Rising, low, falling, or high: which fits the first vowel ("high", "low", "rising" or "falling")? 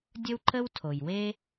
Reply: high